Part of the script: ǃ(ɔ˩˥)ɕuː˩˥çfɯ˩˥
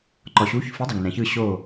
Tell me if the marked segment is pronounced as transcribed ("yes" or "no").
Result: no